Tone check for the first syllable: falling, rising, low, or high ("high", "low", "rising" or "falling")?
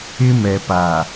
high